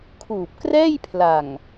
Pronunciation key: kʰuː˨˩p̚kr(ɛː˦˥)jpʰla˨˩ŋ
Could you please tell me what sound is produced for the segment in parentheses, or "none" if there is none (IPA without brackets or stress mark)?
ɛː˥˩